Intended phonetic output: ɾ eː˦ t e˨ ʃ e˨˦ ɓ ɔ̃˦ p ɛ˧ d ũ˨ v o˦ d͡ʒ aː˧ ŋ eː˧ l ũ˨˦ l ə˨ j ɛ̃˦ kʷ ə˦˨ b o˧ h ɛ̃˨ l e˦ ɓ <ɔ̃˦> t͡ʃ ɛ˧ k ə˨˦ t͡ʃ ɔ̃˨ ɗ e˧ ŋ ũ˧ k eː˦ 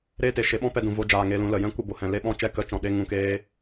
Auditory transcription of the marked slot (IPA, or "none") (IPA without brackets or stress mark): ɔ̃˦